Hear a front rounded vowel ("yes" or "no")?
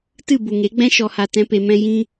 no